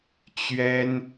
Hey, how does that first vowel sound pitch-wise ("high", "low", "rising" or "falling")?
high